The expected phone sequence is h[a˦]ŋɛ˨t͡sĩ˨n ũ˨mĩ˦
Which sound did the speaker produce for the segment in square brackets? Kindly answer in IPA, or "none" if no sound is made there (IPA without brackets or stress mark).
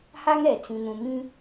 a˦